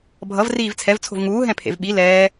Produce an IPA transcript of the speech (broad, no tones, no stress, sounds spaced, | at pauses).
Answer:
bʱ ʌ v r iː v t͡sʰ ɛ v t͡sʰ o̤ v ŋ uː ɦ ɛ̃ pʰ ḛ v ɓ i l ɛː